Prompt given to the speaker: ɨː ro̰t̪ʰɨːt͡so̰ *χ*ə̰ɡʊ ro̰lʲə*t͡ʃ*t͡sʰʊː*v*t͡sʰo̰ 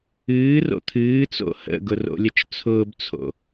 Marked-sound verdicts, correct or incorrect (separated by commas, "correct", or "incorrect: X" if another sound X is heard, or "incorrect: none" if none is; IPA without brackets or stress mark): incorrect: h, correct, incorrect: b